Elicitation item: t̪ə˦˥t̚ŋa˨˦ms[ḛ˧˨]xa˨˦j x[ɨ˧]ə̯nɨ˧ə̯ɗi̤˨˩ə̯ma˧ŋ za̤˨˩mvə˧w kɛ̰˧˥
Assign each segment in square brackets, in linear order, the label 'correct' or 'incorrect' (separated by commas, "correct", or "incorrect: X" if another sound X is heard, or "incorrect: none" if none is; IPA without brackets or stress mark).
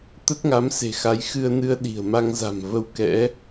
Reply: incorrect: e̤˨˩, correct